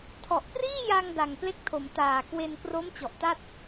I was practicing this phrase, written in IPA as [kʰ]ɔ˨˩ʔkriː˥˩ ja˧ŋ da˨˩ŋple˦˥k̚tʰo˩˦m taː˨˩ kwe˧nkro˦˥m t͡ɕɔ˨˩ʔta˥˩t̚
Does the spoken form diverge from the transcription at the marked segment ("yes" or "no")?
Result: yes